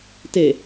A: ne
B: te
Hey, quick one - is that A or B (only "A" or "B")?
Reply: B